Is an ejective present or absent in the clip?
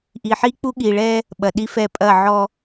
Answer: present